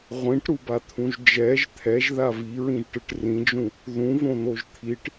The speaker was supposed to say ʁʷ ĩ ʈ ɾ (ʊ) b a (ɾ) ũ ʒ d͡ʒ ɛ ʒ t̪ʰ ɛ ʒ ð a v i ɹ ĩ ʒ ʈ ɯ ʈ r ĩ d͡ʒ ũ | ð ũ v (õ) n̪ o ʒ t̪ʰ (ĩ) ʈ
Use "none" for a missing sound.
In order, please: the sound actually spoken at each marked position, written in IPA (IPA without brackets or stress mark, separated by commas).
u, t̪ʰ, õ, i